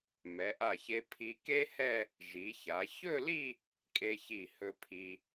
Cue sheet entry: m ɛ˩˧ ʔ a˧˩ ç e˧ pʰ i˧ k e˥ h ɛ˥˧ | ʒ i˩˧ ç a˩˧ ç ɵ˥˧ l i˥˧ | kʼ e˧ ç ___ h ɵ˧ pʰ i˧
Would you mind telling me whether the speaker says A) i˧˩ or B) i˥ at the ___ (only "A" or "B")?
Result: A